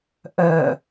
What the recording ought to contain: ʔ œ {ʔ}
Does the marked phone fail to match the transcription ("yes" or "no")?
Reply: yes